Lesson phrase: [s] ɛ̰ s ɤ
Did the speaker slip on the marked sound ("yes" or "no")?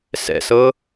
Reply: no